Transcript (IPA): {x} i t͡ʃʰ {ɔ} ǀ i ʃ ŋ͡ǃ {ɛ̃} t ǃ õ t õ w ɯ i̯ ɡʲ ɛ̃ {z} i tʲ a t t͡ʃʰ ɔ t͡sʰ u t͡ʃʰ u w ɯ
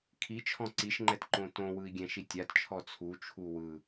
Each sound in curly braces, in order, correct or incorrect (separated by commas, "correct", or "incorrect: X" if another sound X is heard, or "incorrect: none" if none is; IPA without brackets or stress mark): incorrect: kʰ, incorrect: ɔ̃, incorrect: ɛ, incorrect: ʃ